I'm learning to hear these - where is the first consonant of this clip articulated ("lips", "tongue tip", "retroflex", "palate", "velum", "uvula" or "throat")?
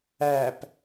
lips